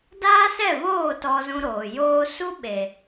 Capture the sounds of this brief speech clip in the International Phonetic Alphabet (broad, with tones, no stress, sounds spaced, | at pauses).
d aː˦ s ɛ˦˨ v oː˦˨ t ɔ˧ z ũ˧ ɾ oː˨ j oː˧ s u˦ ɓ e˨